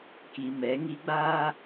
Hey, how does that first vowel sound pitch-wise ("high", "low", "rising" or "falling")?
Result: low